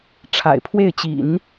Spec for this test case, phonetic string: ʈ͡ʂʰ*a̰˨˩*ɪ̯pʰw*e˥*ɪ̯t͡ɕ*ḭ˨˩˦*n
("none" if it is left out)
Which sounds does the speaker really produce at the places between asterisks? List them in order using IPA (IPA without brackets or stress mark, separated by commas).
a̰˨˩, e˥˩, ḭ˨˩˦